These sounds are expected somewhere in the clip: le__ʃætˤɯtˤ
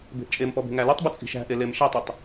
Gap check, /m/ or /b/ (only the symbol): m